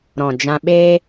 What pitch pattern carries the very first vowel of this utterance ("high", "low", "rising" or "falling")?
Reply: low